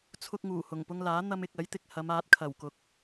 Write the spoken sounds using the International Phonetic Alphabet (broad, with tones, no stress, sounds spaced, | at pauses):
t͡sʰ ʊ˧ k̚ ŋ uː˨˩ h ʊ˨˩ ŋ p ʊ˧ ŋ l aː˨˥ n̪ ɐ˧ m ɪ˨ k̚ ɐ˨˥ j t̪ ɪ˨ k̚ h ɐ˨˧ m aː˨˥ t̚ kʰ ɐ˨˩ w k ʊ˨ k̚